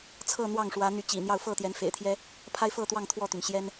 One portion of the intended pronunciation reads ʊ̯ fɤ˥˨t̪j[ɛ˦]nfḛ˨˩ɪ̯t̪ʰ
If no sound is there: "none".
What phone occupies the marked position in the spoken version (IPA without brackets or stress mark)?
ɛ˨˦